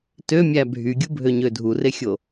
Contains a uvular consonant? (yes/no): no